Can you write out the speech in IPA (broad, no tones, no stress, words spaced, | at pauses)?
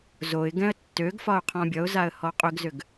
zoɪ̯ɡɛ̃ə̯ tːøɡfɒʊ̯ qʰɔ̃bʲʌʊ̯zaə̯ hɔqʼʏɡzʏɡ